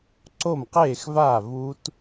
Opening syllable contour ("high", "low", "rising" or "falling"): falling